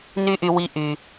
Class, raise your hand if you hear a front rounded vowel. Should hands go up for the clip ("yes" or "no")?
yes